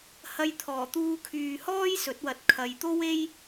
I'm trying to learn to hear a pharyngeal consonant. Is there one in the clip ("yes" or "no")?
no